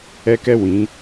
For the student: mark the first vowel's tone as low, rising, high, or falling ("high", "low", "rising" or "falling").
high